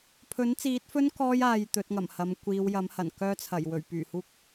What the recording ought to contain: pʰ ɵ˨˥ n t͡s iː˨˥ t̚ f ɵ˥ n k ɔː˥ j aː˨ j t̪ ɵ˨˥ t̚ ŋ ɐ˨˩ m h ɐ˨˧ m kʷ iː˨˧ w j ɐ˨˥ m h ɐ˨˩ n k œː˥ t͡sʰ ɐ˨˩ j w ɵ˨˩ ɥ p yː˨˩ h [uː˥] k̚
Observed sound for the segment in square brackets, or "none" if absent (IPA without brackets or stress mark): uː˥